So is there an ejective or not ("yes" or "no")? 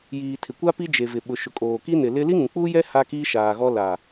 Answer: yes